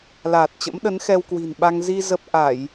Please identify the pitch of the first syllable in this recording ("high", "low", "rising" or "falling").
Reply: low